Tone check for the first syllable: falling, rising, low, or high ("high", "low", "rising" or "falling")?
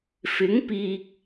rising